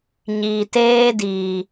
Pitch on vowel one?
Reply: low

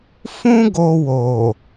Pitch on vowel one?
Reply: high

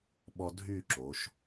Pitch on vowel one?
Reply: high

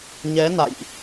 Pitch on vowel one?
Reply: rising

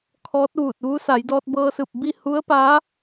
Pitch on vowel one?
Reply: rising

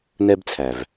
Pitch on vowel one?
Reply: high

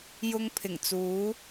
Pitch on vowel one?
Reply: high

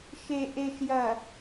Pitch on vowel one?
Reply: low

